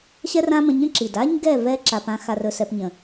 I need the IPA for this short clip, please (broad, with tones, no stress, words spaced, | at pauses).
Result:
ɕɛ˦rã˦mə̃˧ɲə̃˦ ǁi˨d a˦ɲɡɛ˦˨ vɛ˦ ǁa˧pã˦ xa˧rɵ˧sɛ˧pɲə̃˨